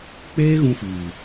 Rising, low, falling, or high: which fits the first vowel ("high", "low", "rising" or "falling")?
high